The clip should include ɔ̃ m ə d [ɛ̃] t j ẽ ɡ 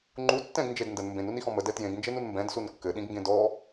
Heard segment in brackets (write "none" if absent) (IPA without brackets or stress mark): ɛ